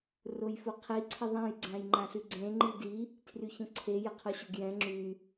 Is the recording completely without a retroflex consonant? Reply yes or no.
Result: yes